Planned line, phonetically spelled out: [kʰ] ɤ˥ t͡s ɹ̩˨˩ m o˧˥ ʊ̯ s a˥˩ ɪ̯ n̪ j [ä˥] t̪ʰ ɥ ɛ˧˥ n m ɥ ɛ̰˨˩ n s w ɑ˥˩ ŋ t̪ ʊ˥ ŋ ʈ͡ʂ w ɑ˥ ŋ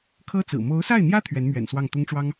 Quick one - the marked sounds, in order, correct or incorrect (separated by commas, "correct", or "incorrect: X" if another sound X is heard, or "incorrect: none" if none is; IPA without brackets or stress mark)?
correct, correct